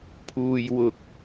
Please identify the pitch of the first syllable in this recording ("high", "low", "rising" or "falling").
low